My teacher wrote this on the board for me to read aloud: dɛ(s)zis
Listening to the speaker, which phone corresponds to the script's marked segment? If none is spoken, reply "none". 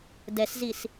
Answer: s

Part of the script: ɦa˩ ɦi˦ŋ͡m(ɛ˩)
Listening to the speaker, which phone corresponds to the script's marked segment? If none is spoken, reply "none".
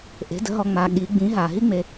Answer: e˩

